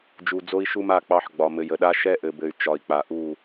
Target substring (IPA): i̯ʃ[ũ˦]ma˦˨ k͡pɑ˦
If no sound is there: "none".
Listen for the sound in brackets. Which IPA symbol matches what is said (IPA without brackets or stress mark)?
u˦